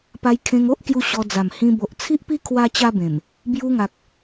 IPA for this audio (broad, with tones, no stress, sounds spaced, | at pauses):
p a˧ j kʰ ẽ˧ ŋ o˦ ʔ k j u˦ ɕ ɔ˧ d͡z a˨˩ m h ĩ˧ b o˨ ʔ t͡sʰ i˦ ʔ p i˦ kʰ w a˦ t͡ɕ a˦ b ẽ˨˩ m | b j u˧ ŋ a˨ k̚